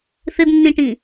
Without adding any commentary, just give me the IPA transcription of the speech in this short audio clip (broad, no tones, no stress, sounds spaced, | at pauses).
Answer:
θ ɘ d nː ĩ ʈ ĩ